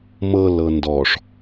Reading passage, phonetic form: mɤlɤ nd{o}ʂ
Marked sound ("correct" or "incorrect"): incorrect